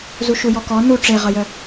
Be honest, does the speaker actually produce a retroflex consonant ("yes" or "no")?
yes